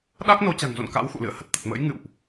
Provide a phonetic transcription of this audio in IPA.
ɗ a˦˥ k̚ n o˨˦ t͡ɕ a̤˨˩ ŋ z o̰˧˨ n k a̰˧˥ w x ṵ˧˨ l ɨ̰˧˨ ə̯ h ə˦˥ t̚ t̪ ə˨˩ t̚ m ə̰ː˧˥ j ŋ ɨ̰˧˨ w ʔ

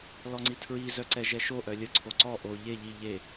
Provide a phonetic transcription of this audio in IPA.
l ɔ ŋ͡ǀ i tʰ ɹ i z œ ǀ ɛ ʒ ɛ ʃ o ʔ œ lʲ ə ǀʰ o ǀ ɔ ʔ o ʎ e ʎ i ʎ e

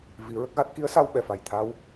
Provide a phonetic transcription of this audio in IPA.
v i˨˩˦ ɹ ə˦˥ k̚ ɣ a˦˥ t̚ k i˧˥ ə̯ s a˧ w ɓ ɛ˨˩ f a˨˩ j t̪ʰ a˧˥ w

